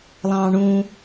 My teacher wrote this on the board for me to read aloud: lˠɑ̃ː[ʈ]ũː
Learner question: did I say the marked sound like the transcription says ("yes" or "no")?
no